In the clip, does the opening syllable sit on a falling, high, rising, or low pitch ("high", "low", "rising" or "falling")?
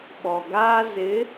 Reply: low